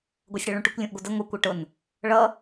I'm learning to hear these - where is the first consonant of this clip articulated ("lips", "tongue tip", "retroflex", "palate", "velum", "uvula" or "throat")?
velum